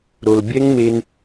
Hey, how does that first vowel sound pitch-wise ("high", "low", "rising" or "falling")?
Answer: low